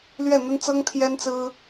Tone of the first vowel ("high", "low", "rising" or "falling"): falling